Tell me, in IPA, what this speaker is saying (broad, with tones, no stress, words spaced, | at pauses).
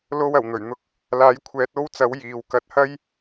lo˧w ɐ˨˩wn̪ɵ˨˩ɥn̪ʊ˧k̚ | laː˨˥jkʷʰɛː˨˥t̚o˥wt͡sɐ˨˥w jiː˨w kɐ˧t̚hɐ˥j